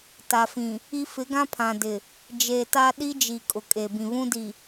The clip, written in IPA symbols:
t a˨ f ĩ˨ | i˦ f ɪ˨˦ ɡ ã˦ pʰ ã˨ d ɪ˨ | d͡ʒ eː˨ t a˦ ɗ i˦ d͡ʒ i˨ kʼ ʊ˨ kʼ e˨ b ĩ˨ β ũ˦ d i˨

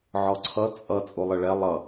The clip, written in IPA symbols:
ʕ ɔ ǀʰ ʌ t͡sʼ ʌ t͡sʼ u lˠ ə ɭ ɛ lˠ ʌ

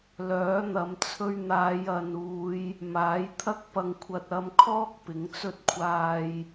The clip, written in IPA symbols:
l œː˨˥ n̪ ɐ˨˧ m t͡sʰ ɵ˧ ɥ n̪ aː˨˧ j ɐ˨ n uː˨˧ j | m aː˨˥ j t̪ʰ ɐ˥ k̚ p ɐ˧ ŋ kʷʰ ɐ˧ t̚ ɐ˧ m kʰ ɔː˥ k̚ p ɪ˨˥ ŋ t͡s ɵ˥ t̚ kʷʰ aː˧ j

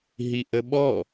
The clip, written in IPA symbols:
ɦ i ʔ ə ɓ ɔ

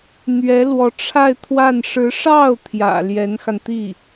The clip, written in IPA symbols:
n̪ ɥ ɛ˧˥ l w ɔ˧˥ ʈ͡ʂʰ a˥˧ ɪ̯ t̪ʰ w a˥˩ n ʂ ɻ̩˧˥ ʂ ɑ˥˩ ʊ̯ t̪ʰ j ä̰˨˩ l j ɛ˧˥ n x a˧ n t̪ i˥˩

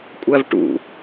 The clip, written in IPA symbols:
kʷʼ æ v ʈ ṵ

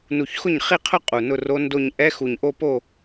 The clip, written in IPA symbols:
n u˧˩ ç x ʊ˥˩ ɲ χ i˥˧ qʰ ʊ˥˧ qʼ u˧˩ n ʊ˥˧ r o˦˥ n d o˥˧ ɲ ʔ ɛ˦˥ x u˧˩ ɲ ʔ o˥˧ p o˥˧

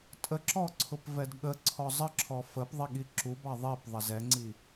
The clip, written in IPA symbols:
tʼ ə ǁ ɔ ǀʰ ʊ p v ɛ d ɠ ə ǀʰ ɔ zˤ ə ǁʰ ɔ f ə p ðˤ i ɠ i ǁ u b ɑ ðˤ i p ðˤ ə z ɛ ŋ͡ǀ i

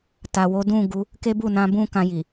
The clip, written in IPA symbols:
t a˨ w o˨˦ d ũ˦˨ ɡ u˨˦ | k e˦ b u˦˨ n ã˧ b ũ˦ k ã˧ j i˨

